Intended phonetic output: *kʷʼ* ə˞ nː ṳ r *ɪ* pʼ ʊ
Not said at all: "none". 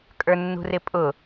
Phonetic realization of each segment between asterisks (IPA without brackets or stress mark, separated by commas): kʼ, ɪ